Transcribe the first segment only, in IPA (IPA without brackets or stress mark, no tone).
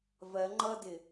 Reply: v